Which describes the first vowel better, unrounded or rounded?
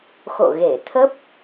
rounded